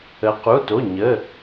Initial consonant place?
uvular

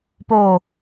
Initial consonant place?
labial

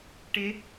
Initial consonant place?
retroflex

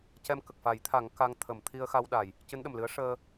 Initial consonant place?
palatal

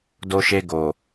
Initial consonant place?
alveolar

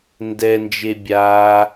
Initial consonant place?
alveolar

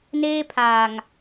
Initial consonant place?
alveolar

